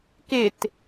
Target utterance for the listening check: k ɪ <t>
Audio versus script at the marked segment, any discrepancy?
no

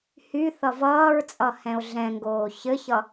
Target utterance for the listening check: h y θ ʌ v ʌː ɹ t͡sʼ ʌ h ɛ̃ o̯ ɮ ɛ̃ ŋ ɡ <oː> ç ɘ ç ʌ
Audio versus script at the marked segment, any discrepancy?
no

